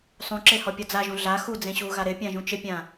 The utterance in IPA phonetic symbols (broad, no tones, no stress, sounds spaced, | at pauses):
sˤ ũ ǁ e h ɔ pʲ ɔ d͡z a ʒ ũ ɮ a x u d͡z ẽ ɕ u ɣ a ɾ ɪ pʲ ã ʒ ũ t͡ʃ ɪ pʲ ã